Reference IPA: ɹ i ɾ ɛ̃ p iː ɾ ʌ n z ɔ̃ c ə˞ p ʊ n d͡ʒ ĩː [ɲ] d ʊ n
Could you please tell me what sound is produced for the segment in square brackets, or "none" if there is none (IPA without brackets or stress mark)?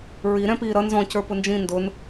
n